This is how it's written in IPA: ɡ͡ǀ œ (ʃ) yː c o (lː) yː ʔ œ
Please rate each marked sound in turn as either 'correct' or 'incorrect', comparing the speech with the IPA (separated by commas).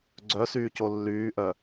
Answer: incorrect, correct